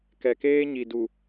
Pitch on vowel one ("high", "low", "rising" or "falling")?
low